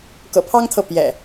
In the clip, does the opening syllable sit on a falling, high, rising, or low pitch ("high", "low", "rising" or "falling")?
low